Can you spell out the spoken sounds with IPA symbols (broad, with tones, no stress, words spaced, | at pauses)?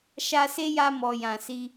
ʃa˧se˦ja˧mɔ˨ jã˨si˧